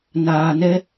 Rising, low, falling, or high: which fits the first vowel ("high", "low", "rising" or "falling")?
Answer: low